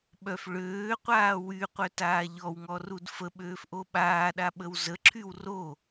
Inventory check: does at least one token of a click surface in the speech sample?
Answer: yes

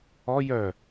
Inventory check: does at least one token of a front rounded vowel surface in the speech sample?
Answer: yes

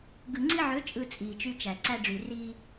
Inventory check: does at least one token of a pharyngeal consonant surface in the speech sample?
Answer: yes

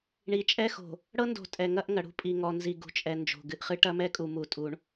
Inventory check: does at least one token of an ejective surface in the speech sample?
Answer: yes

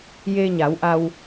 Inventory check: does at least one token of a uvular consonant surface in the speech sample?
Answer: no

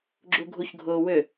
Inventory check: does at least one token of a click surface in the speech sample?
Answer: yes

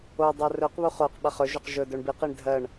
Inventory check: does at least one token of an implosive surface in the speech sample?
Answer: yes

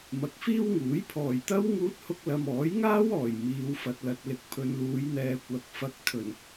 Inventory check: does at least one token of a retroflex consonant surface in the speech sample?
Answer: no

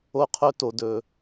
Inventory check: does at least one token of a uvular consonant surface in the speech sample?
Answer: yes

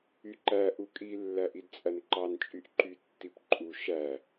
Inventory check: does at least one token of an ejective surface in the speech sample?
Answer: yes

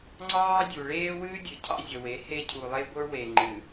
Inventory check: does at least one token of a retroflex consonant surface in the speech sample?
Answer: yes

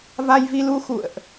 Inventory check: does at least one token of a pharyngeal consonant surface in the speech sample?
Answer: no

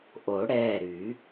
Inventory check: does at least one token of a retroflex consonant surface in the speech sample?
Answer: yes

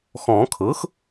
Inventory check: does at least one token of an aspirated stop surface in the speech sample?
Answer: yes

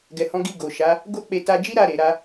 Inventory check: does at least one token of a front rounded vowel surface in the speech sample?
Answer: no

